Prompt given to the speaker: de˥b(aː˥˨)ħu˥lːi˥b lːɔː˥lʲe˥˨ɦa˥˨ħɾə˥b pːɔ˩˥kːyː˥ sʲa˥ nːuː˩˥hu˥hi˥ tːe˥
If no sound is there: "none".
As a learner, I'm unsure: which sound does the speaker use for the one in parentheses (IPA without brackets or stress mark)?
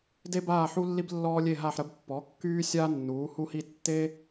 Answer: aː˥˨